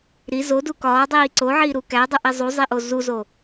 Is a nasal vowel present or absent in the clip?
absent